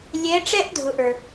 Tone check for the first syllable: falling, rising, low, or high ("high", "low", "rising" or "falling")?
rising